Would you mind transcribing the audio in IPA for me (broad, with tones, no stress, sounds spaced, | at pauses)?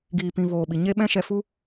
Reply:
ɡ iː˨ p ĩ˨ v oː˨ ɓ i˨ ɲ e˦ ɓ ɛ̃˦ ʃ ɛ˧ f u˦